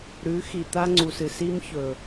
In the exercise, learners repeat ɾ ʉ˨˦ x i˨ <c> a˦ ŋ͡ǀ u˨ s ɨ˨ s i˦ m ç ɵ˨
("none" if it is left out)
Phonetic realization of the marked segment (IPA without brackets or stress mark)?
t̪